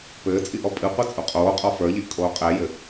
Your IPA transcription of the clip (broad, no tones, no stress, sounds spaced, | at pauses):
p ɘː t͡sʼ i ʔ ɔ pʼ ɨ qʷ ɨ t͡sʼ u qʼ oː qʼ ɔ f ə˞ ʎ i ʔ kʼ oː qʼ ɛ j ɘ